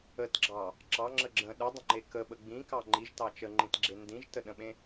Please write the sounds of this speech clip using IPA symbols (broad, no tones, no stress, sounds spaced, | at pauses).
ə t ɡ͡ǁ ɑ | ǁ ɑ ŋ͡ǁ ə ɡ͡ǁ ə̃ ɗ ə dˤ ə̃ ŋ͡ǃ e k ə ɓ ə ɡ͡b ĩ k ɑ ŋ͡ǃ i ʒ t ɑ t͡ʃ ə ŋ͡ǃ ĩ t ɡ͡ǁ e n d ĩ ʒ t ə ɗ ə̃ ɓ ẽ